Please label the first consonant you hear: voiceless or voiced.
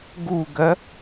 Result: voiced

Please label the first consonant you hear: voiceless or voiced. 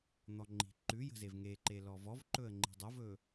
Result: voiced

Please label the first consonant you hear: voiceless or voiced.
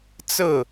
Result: voiceless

